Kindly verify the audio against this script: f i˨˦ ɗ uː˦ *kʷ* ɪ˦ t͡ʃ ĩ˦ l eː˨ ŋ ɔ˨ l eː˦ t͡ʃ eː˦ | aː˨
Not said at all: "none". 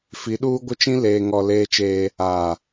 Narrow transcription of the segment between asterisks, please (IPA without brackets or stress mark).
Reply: ɡʷ